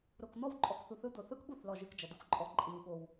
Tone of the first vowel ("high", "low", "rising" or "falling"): low